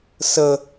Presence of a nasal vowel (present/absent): absent